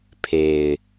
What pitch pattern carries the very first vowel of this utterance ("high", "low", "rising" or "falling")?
low